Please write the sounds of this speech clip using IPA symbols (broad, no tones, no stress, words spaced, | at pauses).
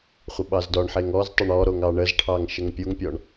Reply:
χʷəɓɑzdɔɳħeŋ ɔztˤʏɳ ɔɾoŋ ɑɳəzʈʰɑŋ ʃəŋpʲuŋpʲɔɳ